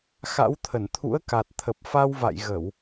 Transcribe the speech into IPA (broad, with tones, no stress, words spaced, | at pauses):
xa̰˧˥wt̪ʰə˧˩n t̪ʰṵ˧˥ə̯ka˨˩t̚t̪ʰə˨˩p̚ fa˧wva̰˧˨j ɣə˧˩˨w